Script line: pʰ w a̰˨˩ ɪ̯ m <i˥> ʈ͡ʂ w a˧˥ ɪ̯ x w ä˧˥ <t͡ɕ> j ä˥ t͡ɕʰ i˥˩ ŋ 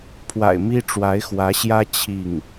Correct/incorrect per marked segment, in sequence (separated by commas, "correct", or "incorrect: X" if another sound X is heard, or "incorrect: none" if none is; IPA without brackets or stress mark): correct, incorrect: ɕ